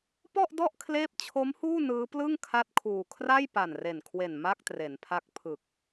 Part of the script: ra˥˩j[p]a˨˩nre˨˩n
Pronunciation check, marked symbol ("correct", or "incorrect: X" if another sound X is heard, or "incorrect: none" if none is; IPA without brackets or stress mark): correct